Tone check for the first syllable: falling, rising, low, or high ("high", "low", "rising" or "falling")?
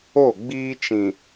falling